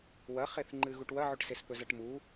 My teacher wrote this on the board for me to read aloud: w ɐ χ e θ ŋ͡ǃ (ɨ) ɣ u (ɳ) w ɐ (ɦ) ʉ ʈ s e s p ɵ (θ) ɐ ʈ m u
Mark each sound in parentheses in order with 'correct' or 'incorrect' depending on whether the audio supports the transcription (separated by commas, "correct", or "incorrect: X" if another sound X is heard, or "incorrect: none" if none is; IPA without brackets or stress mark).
correct, incorrect: ʈ, incorrect: ʕ, incorrect: z